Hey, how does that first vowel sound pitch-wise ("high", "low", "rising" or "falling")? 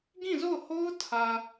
falling